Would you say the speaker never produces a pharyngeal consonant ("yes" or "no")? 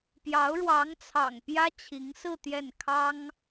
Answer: yes